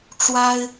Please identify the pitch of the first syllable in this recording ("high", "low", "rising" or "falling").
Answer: high